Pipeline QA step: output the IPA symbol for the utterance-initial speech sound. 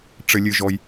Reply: ʈ͡ʂ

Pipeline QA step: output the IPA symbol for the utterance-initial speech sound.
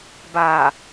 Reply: b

